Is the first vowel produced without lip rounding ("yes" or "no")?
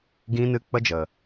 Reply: yes